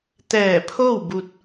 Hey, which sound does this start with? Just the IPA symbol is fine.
t̪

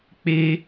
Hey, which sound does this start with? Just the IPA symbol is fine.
k͡p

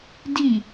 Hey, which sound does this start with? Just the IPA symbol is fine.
d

